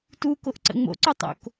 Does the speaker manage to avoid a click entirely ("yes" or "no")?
no